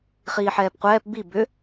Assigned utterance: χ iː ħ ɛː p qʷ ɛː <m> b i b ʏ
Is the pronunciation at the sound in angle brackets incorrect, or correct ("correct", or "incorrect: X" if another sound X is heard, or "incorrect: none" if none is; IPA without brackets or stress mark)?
incorrect: p